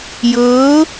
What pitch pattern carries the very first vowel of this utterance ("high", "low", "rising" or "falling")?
rising